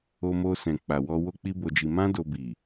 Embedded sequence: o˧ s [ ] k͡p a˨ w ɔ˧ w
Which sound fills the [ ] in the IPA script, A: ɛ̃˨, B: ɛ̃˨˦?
A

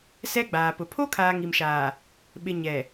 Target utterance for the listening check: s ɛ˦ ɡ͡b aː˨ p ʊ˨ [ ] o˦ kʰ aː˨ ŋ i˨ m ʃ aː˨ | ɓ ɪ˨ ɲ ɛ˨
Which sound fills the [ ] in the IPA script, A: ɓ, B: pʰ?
B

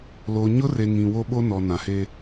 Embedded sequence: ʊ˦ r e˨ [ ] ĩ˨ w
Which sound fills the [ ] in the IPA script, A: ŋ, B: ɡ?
A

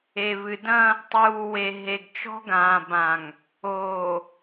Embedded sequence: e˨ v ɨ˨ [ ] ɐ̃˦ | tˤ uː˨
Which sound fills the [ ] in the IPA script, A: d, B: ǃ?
A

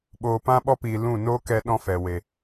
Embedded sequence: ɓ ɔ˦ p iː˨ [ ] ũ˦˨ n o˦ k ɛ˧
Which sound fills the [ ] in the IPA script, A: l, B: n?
A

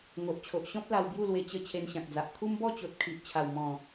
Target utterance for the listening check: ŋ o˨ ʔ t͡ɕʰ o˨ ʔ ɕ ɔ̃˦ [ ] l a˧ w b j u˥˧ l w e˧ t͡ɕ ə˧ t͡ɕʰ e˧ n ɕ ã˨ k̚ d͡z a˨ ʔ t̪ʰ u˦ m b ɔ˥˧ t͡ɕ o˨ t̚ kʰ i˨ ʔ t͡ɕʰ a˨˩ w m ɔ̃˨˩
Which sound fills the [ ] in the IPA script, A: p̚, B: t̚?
A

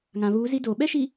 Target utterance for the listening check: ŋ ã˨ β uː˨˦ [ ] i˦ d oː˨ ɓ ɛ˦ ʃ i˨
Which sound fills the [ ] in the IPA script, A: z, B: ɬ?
A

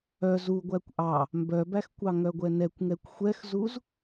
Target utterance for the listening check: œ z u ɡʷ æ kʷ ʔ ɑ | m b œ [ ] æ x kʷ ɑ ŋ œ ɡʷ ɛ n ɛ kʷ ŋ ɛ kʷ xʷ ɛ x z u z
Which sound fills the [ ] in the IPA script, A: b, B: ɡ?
A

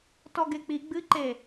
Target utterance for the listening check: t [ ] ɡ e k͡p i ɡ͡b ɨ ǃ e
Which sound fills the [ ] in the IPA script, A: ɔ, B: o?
A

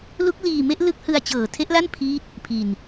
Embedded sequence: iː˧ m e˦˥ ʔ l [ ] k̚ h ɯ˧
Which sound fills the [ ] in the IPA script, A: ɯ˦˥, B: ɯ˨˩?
A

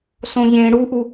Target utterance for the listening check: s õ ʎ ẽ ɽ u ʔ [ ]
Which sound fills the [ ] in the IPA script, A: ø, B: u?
B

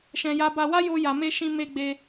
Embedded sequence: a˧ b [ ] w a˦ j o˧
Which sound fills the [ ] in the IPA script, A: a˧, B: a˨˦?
A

